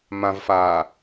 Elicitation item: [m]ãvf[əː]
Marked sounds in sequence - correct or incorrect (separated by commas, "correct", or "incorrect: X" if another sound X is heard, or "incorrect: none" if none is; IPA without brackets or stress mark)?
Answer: correct, incorrect: aː